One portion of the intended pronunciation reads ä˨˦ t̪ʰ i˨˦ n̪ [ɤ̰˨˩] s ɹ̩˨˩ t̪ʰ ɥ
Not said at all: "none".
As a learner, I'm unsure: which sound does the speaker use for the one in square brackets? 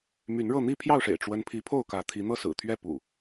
ɤ˥˨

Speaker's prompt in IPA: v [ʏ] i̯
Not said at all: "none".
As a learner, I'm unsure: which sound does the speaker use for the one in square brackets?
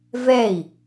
ɛ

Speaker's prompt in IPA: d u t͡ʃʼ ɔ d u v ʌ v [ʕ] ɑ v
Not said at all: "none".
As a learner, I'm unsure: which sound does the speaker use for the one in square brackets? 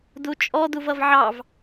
ʕ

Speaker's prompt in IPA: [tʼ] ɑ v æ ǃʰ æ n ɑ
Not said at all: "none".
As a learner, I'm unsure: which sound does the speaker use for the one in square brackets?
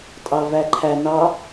tʼ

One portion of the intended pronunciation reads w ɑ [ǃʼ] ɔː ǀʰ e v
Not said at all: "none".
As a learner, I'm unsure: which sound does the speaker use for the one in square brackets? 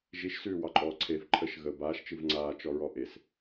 ǃʼ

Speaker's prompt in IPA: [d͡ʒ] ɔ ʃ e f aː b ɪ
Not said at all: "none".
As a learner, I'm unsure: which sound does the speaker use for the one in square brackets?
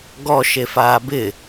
ɡ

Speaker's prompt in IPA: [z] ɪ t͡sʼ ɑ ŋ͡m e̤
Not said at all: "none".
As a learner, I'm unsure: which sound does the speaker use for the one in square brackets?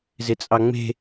z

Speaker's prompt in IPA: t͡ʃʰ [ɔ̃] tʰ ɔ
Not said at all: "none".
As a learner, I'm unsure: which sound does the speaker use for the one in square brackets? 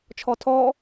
ɔ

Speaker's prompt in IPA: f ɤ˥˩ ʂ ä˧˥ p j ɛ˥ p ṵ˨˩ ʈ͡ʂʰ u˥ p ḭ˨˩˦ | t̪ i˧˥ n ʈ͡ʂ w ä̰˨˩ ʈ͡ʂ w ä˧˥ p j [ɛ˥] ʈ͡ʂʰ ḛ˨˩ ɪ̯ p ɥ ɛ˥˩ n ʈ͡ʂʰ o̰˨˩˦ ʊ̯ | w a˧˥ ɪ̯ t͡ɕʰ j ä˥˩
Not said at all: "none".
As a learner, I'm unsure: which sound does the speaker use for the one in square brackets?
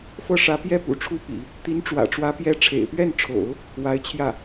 ɛ˥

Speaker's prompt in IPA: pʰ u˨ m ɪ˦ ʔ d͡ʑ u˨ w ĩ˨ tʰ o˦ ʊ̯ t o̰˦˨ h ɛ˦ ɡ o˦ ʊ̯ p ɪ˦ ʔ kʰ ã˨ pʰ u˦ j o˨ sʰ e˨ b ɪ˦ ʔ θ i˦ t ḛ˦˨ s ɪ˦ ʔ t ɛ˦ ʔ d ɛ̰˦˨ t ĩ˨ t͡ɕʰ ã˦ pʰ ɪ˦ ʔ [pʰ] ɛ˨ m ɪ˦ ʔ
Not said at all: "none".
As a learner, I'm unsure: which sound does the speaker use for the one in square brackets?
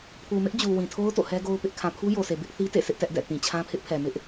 pʰ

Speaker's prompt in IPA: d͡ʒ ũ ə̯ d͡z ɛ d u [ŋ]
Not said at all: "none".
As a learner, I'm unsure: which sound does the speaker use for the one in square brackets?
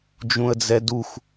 x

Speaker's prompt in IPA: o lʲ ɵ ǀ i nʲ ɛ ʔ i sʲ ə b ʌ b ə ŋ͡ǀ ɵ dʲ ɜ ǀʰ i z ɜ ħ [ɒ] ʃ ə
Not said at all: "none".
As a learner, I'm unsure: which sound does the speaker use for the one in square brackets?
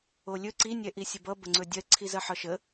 ɒ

